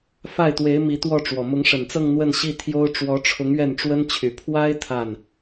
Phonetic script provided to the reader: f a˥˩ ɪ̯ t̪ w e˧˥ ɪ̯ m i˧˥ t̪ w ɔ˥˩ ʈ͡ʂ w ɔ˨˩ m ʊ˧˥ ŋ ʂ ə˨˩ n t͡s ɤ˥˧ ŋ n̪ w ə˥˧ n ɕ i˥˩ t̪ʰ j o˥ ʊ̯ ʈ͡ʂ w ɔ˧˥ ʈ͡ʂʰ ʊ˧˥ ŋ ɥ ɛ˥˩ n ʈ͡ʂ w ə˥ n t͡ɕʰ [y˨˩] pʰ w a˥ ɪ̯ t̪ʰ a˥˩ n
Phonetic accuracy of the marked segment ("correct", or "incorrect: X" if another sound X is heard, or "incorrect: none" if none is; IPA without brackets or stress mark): correct